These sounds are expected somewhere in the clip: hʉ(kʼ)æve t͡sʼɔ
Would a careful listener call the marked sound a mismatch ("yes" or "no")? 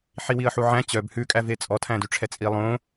no